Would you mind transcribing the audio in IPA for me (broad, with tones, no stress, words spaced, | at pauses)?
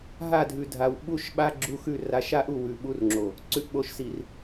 ɦa˦˨dʱʉ˨dʱa˨w ɓu˦ʃɓa˦ ɡ͡ǁu˦xʉ˦˨ ra˨˦ʃa˦ʔu˨ wʉ˨ɓu˦rŋ͡ǁo˨ | ǀʉ˨ʔɓo˨ʃsi˨r